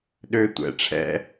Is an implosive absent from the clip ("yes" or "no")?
no